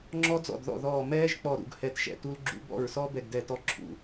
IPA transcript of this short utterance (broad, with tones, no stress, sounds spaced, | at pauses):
ŋ͡ǁ ɔ˦˥ d͡z ɔ̰˧˩ d ð ɔ̰˧˩ ð ɔː˧˩ m ɛː˦˥ ʒ k͡p ɔ˧˩ ɾ ṵ˧˩ ɡ h ɛ˧˩ t ʃ ɛ̰˧˩ t u˦˥ l ɡ͡ǁ ṵ˦˥ b ɔ̰˧˩ ɹ s ɔ˦˥ b ɛ˧˩ ɡ d ɛ˧˩ t ɔ˦˥ ǁʰ ṵ˧˩